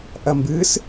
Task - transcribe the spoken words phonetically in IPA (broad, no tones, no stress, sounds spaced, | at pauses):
ʔ ɐ m b ɨ s